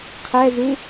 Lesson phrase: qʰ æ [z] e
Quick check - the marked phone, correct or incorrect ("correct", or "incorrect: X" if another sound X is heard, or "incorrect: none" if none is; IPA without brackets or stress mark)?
correct